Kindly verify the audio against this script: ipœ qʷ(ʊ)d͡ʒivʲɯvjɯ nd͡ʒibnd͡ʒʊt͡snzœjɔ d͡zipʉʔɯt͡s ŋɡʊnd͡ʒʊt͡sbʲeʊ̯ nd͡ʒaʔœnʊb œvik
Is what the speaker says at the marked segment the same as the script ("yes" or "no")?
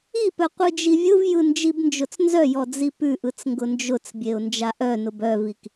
no